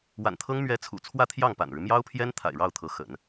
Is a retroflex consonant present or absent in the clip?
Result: present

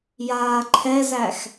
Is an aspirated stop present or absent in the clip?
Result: present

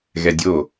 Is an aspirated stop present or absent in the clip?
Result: absent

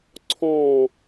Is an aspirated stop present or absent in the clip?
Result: present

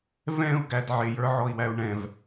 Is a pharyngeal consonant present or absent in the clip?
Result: present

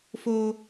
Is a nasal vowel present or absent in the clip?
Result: absent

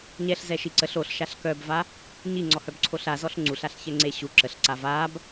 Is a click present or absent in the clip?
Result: present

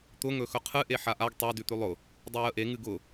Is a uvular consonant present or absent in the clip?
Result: present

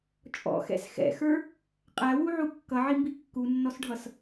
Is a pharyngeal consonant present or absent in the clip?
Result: present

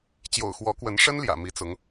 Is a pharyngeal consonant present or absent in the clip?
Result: absent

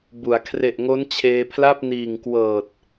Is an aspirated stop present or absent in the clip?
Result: present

